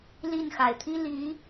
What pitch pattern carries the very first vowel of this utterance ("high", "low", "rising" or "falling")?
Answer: falling